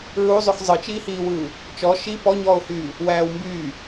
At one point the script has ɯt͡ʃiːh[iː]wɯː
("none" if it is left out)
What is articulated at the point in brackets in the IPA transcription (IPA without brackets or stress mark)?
iː